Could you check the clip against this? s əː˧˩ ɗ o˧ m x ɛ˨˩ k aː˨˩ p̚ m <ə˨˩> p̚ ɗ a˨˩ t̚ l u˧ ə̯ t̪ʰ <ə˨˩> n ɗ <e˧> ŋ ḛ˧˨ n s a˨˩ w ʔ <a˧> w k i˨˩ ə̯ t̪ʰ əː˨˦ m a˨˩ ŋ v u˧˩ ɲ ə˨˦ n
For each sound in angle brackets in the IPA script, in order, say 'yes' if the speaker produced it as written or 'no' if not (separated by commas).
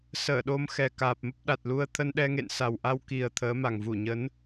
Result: no, no, no, yes